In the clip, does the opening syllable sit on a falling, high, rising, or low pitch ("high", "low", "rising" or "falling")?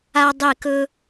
high